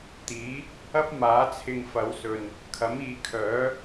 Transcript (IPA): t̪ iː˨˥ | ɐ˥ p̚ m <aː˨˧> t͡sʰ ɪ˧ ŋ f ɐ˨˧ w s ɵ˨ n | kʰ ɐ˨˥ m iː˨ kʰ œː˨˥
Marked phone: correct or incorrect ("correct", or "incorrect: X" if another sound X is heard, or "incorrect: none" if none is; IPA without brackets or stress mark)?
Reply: incorrect: aː˨˥